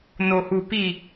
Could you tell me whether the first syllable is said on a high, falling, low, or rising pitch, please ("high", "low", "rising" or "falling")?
low